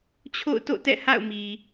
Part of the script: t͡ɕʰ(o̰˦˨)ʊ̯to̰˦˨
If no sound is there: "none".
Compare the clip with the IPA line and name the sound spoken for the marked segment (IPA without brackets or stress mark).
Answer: o̰˦˨